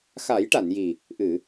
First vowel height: low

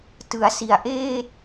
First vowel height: high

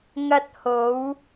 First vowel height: low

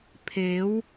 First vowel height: mid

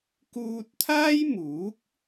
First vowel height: high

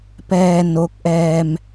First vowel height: mid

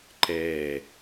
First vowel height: mid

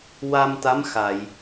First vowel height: low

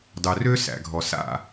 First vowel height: high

